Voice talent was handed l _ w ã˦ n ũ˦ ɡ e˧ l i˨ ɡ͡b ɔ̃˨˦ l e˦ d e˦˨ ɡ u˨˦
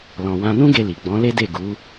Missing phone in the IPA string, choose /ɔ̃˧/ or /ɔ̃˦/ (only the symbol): ɔ̃˧